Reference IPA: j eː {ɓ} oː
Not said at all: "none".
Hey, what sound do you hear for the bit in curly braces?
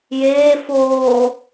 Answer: f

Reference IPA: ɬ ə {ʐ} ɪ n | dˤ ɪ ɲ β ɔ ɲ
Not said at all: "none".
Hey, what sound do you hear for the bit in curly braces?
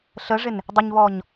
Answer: ʐ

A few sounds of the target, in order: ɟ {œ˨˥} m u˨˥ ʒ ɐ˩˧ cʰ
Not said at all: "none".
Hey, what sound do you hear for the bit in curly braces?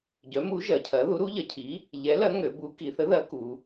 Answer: œ˨˥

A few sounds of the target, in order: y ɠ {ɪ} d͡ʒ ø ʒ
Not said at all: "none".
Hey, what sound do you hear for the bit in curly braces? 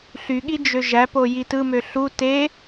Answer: i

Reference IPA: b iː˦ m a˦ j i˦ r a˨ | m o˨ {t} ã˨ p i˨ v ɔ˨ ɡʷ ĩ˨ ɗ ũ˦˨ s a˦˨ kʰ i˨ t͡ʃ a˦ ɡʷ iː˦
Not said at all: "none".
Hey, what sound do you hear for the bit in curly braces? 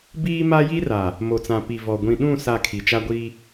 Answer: t͡s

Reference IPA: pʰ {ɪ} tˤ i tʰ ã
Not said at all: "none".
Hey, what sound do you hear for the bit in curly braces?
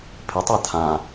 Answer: ɪ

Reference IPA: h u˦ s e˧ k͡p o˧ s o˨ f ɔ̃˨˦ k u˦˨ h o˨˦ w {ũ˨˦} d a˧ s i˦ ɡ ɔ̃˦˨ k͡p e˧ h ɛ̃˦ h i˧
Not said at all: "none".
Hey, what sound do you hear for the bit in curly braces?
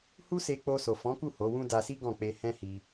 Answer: ũ˦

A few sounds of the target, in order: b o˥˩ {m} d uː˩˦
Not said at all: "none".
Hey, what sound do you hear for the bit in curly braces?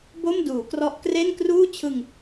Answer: m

